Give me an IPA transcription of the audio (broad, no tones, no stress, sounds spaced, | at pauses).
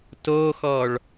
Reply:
t o x ɔ ɭ